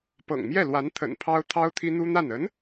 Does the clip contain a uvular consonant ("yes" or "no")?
no